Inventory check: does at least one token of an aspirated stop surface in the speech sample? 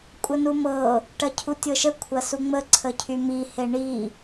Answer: yes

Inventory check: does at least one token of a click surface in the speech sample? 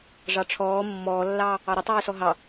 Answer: no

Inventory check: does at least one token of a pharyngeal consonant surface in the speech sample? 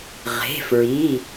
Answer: no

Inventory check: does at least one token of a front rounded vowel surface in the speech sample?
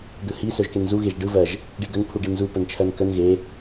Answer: yes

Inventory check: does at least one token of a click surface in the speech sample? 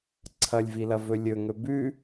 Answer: yes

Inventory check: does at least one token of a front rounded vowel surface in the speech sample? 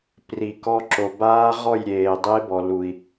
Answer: no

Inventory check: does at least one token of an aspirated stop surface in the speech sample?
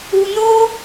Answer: no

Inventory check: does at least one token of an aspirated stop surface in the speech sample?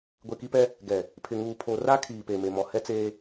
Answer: yes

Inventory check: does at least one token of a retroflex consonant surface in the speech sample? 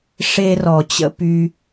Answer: yes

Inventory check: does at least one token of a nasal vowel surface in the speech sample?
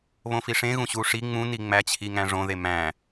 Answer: yes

